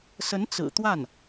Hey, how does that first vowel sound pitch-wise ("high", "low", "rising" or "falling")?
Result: rising